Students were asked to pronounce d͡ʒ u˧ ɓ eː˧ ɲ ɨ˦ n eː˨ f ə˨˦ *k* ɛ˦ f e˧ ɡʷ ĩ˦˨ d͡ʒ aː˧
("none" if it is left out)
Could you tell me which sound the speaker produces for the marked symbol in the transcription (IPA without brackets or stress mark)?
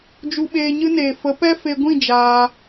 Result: p